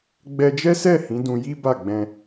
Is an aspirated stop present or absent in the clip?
absent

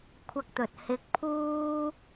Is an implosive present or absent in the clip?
absent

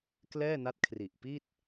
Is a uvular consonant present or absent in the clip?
absent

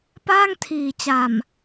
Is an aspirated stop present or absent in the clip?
present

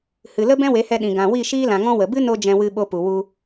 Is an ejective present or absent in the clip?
absent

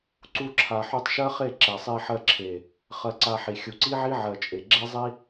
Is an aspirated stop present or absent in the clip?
present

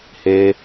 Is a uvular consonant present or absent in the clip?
absent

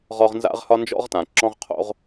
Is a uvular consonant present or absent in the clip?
present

